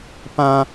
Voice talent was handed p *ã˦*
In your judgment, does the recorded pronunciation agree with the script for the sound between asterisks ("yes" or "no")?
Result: yes